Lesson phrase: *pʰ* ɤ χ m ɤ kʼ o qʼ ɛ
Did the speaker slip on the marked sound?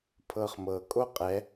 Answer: no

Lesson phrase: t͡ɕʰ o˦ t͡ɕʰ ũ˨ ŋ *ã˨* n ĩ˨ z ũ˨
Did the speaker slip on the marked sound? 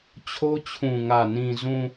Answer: yes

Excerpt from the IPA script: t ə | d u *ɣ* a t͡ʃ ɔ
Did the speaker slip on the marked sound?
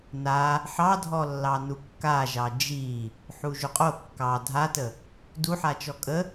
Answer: yes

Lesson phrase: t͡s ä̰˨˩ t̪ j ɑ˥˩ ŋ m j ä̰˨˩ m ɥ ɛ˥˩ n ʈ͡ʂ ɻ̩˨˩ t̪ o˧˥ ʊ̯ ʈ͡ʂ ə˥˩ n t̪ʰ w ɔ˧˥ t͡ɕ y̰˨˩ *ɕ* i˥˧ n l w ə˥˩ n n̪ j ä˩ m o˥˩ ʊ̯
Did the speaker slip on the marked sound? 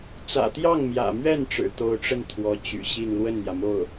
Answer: no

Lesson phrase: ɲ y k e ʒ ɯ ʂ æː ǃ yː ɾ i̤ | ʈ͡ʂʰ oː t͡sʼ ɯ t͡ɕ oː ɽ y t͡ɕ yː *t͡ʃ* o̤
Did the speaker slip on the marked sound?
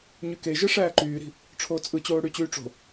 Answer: yes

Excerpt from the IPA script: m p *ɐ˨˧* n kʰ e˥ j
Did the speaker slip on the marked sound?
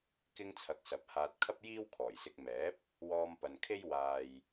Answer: yes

